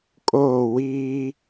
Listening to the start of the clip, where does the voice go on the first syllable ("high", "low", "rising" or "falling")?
falling